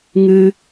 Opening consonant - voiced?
yes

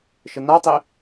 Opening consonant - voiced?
no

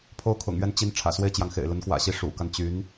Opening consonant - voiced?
no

